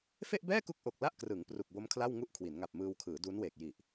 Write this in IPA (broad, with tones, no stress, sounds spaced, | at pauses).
f e˥˩ ʔ b ɛː˥˩ k u˦˥ k̚ ʔ o˨˩ k̚ l a˥˩ ʔ k r ɯ˩˦ ŋ p r u˨˩ k̚ b o˦˥ m kʰ l a˥˩ w ŋ u˥˩ ʔ kʰ w i˩˦ n ŋ a˨˩ p̚ m ɯː˧ w kʰ ɯː˩˦ d uː˦˥ n w eː˨˩ k̚ j i˨˩ ʔ